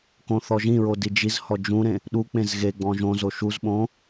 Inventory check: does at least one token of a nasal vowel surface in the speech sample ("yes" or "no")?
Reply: yes